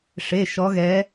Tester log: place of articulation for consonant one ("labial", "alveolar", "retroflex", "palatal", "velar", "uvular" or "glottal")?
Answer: retroflex